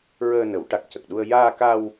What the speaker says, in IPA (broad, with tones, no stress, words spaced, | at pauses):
ɹəː˧nə˨˩˦wʈa˨˩k̚ cə˨˩k̚ɗu˧ə̯ jaː˧ka˧w